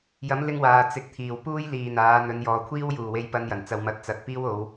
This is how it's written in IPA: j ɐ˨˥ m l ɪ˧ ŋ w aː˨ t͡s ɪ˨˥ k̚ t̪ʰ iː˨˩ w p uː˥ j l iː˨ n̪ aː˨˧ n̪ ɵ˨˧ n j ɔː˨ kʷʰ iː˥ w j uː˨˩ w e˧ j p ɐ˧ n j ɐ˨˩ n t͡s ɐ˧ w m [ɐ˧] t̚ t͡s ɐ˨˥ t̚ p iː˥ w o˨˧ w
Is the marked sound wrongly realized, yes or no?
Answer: no